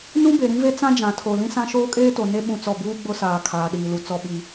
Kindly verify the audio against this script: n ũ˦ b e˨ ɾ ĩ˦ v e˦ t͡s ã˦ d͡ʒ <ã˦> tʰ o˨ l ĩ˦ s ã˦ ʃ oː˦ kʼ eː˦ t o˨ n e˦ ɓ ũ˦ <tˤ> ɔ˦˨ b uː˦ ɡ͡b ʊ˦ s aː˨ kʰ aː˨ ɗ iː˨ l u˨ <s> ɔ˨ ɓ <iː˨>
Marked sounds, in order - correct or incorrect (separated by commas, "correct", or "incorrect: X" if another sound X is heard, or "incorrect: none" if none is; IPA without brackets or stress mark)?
incorrect: ã˨, incorrect: t͡s, incorrect: t͡s, incorrect: i˨